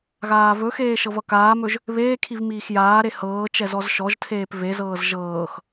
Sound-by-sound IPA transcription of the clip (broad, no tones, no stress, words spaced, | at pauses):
ɣaːvɵxeː ʃɤvʌkaːmɵʒ | βeːkʰiv miːxjaːɾe hɤː t͡ʃɛzɔzʃɔʒtʰeːp vezɤːz ʒɤːx